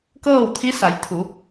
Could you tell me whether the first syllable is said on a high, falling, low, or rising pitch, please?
falling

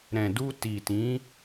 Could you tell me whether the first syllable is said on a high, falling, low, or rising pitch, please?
low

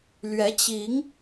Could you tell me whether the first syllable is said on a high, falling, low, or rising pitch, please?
rising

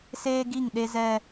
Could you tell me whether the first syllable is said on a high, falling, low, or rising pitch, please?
high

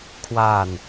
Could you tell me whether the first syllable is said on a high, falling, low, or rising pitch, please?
falling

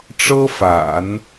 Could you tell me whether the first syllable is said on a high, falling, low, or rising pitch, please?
high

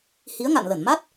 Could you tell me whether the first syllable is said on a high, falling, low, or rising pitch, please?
rising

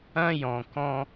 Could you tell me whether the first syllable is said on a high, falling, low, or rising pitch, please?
high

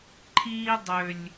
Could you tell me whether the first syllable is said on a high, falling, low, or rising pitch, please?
high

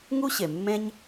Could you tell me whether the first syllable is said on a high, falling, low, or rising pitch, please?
high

